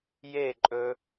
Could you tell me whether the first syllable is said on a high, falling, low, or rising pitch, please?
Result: falling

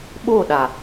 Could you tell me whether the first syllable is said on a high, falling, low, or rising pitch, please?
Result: falling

